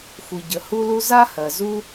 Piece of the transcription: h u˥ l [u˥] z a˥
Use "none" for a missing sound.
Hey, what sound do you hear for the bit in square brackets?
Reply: u˥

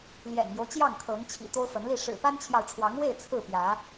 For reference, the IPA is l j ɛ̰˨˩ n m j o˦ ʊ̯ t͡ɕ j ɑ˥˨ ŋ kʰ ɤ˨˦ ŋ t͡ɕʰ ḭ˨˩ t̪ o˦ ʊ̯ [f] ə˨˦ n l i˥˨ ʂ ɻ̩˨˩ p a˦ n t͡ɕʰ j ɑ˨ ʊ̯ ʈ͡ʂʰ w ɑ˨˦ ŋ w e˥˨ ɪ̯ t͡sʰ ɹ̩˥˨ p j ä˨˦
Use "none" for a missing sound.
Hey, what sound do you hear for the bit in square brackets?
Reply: f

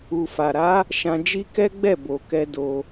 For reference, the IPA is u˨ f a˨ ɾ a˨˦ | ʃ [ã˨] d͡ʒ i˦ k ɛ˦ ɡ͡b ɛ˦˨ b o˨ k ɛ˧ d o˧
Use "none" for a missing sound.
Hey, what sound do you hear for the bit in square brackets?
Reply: ã˧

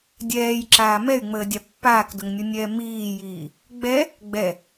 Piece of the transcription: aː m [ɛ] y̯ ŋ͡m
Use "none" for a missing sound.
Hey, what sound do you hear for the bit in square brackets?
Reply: ɛ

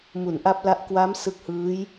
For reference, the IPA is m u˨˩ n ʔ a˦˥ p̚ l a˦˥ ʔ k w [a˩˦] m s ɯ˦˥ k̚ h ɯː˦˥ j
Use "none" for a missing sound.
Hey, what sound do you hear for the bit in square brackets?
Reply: a˦˥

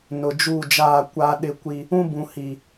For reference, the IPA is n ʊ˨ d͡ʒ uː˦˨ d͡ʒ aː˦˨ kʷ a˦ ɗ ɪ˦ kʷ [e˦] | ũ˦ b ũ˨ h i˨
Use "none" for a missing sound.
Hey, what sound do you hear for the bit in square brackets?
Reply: i˦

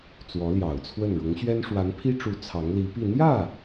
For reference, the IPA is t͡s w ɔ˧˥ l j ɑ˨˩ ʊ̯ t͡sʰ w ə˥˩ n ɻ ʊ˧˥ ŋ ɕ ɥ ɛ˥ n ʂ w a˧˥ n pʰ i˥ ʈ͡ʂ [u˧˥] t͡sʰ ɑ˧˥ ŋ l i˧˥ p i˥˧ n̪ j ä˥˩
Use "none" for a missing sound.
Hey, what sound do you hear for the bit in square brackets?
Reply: u˧˥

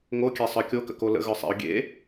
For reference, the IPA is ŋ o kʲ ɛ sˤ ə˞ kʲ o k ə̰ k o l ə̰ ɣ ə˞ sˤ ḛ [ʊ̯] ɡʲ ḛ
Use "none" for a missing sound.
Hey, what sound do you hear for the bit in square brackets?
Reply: ʊ̯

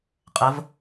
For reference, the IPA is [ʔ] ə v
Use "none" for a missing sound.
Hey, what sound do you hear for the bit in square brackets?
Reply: qʼ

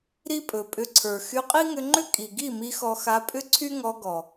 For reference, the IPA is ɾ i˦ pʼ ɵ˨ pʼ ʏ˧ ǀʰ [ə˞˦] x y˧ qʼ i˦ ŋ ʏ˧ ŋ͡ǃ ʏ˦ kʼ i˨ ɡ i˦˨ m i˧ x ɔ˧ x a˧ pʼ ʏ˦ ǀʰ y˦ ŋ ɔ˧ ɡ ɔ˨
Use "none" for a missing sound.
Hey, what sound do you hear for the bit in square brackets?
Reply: ə˞˨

